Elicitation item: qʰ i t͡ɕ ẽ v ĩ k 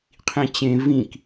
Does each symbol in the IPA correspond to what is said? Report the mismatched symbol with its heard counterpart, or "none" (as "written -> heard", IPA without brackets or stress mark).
i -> ĩ